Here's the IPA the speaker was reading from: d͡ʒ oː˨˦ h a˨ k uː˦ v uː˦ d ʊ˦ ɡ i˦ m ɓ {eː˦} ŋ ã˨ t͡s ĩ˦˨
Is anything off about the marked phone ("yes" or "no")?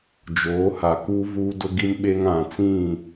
no